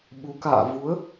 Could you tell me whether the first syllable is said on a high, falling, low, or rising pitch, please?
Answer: rising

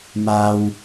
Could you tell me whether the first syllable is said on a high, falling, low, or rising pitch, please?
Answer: high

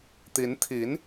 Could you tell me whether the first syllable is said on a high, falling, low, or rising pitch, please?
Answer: rising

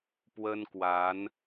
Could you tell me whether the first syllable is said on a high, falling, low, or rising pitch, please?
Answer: high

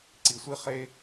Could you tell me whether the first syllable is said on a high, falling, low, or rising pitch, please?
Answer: low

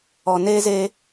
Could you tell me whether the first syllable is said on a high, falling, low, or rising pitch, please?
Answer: low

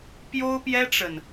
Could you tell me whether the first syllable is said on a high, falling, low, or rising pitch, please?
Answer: high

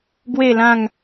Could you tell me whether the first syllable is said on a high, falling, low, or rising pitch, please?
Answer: falling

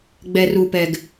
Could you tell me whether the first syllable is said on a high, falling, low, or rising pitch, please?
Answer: low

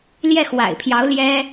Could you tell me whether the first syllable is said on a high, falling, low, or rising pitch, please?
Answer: falling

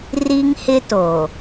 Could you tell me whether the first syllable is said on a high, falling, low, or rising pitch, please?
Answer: high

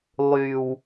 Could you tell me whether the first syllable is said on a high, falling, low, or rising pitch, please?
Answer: low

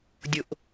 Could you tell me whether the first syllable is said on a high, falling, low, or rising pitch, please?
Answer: low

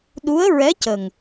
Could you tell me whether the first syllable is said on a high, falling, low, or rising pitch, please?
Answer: rising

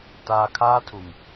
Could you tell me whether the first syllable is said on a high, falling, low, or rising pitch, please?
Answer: low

